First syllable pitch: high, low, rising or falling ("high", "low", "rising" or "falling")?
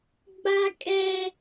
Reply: high